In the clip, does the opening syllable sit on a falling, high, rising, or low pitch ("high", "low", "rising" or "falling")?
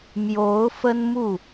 rising